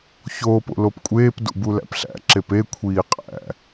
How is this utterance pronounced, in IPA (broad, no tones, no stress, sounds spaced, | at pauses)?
ç oː p o̰ l o p kʷʼ eː p d ṵ b u l æ̰ p ɬ æ̰ ǁ e p e kʷʰ iː qʼ æ̰